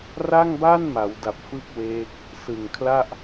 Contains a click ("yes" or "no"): no